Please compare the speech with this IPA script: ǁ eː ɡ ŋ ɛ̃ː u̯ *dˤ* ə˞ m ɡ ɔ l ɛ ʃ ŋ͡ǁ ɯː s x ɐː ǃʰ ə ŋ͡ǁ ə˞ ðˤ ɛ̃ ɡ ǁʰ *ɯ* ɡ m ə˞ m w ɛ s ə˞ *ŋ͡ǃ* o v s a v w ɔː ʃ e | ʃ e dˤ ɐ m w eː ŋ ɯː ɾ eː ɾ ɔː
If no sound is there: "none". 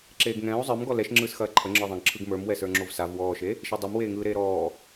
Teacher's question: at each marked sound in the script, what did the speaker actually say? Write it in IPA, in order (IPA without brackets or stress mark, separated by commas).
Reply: zˤ, ɯ, ŋ͡ǁ